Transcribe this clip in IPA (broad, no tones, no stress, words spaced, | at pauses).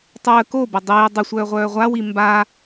tˤəː kobə dˤiː dˤəsʷœːʁʷœː ʁʷawi mba